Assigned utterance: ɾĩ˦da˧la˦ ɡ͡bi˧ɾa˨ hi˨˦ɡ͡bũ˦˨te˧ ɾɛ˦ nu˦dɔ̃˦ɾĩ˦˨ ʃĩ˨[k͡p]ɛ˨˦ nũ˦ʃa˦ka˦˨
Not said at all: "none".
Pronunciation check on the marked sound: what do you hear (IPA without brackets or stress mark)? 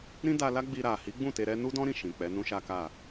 k͡p